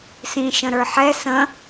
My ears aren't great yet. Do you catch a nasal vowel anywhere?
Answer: yes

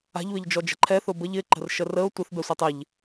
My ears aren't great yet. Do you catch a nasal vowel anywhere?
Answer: no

